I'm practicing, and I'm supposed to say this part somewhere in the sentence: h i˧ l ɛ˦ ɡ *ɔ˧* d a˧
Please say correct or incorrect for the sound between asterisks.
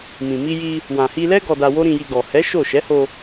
correct